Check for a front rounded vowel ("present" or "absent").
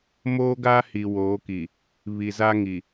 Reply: absent